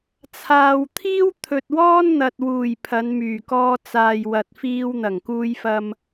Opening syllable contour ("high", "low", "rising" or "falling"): low